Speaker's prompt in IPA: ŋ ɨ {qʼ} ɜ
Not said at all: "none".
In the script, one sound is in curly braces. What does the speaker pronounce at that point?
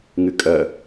kʼ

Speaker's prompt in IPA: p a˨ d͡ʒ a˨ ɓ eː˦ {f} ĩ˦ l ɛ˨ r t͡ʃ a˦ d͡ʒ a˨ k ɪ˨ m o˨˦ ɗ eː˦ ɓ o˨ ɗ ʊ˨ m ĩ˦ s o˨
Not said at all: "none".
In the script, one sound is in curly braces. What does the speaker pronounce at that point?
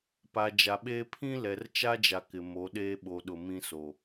pʰ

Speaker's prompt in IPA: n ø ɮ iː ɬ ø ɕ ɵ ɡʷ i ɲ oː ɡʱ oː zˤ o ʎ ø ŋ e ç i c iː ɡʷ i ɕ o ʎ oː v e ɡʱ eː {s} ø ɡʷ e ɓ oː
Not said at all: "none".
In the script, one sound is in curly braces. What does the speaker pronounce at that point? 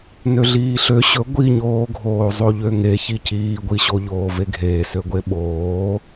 s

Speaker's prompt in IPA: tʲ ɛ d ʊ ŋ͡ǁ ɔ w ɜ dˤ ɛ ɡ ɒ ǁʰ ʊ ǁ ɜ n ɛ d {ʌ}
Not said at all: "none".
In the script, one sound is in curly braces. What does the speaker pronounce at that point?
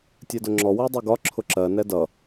ʌ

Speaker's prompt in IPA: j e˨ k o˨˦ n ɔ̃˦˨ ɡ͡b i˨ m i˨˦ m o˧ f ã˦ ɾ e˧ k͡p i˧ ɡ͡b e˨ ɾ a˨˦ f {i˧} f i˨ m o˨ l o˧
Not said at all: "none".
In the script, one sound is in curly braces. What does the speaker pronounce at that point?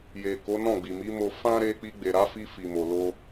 i˧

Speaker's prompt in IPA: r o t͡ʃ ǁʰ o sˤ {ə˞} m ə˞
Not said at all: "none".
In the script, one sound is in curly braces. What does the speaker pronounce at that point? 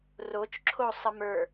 ə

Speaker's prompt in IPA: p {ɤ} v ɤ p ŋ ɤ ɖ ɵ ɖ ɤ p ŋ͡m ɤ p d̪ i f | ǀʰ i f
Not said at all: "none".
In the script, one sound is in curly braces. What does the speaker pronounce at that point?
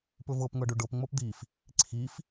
ɵ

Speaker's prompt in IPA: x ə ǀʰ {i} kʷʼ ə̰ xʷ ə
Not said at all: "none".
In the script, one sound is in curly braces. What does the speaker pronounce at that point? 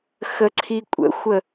i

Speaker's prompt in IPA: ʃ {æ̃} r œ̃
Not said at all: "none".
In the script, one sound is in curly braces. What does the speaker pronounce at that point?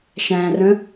æ̃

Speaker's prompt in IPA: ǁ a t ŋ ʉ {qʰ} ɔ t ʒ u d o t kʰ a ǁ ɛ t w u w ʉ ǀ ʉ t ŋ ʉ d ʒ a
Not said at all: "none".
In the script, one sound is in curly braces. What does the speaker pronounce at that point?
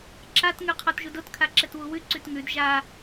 qʰ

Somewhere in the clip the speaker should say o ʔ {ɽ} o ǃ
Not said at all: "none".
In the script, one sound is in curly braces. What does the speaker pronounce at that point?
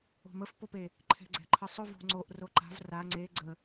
r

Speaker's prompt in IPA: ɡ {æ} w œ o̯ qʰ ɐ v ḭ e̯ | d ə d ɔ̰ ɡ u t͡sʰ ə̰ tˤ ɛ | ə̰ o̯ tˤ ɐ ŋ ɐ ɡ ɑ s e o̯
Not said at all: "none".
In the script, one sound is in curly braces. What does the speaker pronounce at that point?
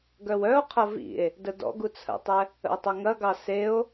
œ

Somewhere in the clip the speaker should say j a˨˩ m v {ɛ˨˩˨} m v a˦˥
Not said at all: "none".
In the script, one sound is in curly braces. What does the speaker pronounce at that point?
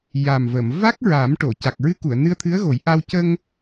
ə˨˩˨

